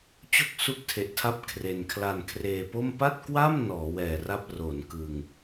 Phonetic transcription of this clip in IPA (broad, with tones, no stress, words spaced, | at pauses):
t͡ɕo˥˩k̚su˦˥k̚tʰe˨˩ʔtʰa˦˥p̚ kʰre˧n kʰla˧nkʰreː˧po˥˩m pa˥˩t̚kwa˥˩m nɔː˩˦wɛː˨˩ra˥˩p̚ ro˩˦nkɯ˧ŋ